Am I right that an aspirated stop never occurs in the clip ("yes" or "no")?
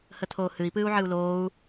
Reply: no